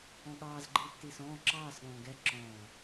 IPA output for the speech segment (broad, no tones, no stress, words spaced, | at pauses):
ɔ̃ɠɑːz ɡ͡ǃiːtːiːsɔ̃ː ǁɑːs ɠɔ̃ːɡɛ ǁɔ̃ː